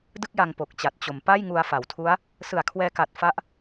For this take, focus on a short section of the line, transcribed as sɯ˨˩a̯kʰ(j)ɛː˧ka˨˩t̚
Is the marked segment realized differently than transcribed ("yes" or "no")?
yes